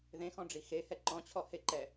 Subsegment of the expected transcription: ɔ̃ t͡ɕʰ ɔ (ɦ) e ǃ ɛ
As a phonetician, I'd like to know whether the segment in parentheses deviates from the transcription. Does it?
yes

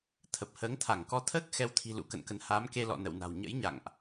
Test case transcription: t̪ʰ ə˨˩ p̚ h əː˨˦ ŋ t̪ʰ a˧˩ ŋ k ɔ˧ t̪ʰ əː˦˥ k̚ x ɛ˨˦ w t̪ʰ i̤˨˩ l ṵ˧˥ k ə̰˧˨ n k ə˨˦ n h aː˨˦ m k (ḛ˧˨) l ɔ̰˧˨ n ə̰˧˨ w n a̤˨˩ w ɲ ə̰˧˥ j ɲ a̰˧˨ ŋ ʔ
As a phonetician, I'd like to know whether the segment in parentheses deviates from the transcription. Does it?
yes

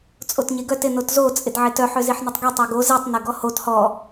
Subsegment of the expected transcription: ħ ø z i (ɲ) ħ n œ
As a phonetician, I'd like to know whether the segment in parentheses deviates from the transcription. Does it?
yes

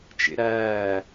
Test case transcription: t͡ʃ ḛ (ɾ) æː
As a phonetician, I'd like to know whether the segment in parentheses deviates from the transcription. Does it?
no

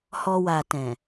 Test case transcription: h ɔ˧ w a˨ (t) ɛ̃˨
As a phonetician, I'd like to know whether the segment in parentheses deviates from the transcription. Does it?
no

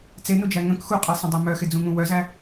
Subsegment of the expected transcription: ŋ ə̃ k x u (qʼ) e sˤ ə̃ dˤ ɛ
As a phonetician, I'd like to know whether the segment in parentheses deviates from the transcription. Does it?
no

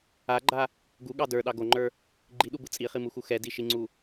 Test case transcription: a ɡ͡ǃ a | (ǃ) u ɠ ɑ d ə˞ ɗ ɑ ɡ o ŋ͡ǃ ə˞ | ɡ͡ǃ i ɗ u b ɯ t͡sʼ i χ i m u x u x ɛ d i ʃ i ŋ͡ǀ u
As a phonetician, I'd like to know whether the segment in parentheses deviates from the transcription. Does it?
yes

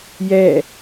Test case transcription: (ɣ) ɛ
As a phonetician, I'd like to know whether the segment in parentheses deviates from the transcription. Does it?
yes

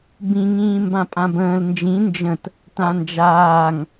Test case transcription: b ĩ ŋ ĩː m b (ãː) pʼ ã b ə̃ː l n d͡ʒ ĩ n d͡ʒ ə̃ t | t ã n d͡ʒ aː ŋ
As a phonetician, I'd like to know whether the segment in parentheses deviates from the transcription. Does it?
yes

